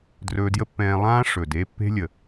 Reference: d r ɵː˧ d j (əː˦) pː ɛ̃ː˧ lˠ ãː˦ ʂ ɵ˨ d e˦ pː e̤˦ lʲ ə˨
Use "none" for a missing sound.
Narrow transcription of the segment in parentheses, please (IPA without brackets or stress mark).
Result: ə˦